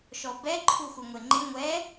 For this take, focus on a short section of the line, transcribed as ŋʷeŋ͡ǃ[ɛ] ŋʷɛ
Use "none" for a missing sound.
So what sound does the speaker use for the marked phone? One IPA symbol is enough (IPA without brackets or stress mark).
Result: ɪ